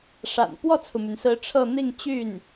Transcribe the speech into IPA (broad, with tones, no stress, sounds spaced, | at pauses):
ʂ a̰˨˩ n p w ɔ˥˩ t͡sʰ u˩ m y˩ n s ɹ̩˧˥ ʈ͡ʂʰ ɤ˥˧ n̪ i˥˧ ŋ t͡ɕ y˥˩ n